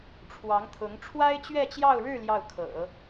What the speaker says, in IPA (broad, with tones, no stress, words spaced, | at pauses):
ʈ͡ʂʰwɑ˧˥ŋt̪ʰʊ˧˥ŋ ʈ͡ʂʰwa˥ɪ̯t͡ɕɥɛ˥˧t͡ɕjɑ˥˧ʊ̯ɻɻ̩˥˧ ljɑ˥˩ʊ̯kʰɤ̰˨˩˦